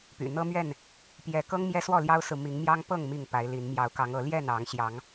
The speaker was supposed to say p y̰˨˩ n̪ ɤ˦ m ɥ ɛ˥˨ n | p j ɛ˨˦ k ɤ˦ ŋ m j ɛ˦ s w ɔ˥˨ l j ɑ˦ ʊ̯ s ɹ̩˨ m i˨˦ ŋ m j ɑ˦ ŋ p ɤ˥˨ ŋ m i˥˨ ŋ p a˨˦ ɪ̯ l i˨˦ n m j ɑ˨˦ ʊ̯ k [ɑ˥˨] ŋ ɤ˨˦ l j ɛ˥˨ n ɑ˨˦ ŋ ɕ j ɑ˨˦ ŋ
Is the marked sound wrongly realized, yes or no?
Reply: yes